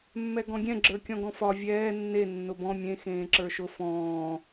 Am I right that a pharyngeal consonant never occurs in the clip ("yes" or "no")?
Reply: yes